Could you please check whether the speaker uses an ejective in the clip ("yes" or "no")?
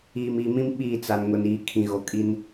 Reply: yes